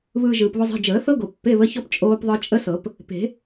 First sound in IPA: β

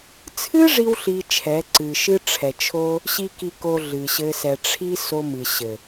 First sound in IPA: t͡sʰ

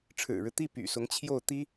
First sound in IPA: ʈ͡ʂʰ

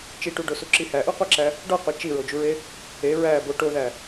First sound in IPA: t͡ʃ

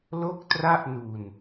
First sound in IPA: l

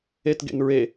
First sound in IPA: e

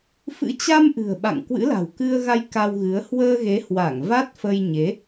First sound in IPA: f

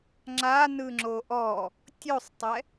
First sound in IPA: ŋ͡ǁ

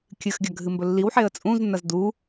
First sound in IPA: kʲ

